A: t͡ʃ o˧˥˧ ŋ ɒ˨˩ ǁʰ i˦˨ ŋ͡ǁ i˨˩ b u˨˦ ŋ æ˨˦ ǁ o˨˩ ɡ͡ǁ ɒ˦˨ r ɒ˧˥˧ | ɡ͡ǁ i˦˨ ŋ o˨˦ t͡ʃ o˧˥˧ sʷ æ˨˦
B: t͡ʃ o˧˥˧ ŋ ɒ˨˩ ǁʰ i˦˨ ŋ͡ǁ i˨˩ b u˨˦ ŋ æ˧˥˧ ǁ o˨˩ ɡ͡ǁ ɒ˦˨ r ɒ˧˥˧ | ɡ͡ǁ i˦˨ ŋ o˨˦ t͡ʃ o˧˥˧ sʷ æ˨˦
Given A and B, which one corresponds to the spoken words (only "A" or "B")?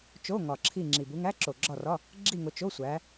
B